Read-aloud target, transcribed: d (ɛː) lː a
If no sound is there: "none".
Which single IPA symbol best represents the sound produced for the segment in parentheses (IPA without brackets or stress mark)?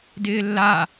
ɪː